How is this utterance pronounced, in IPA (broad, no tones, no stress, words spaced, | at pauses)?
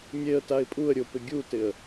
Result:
mʲeə̯taɪ̯ pʼuə̯ ɾʲʊpɪ ɡʲutɪə̯